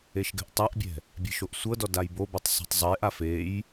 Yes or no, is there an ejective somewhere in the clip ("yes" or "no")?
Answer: no